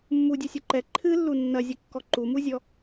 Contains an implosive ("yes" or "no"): no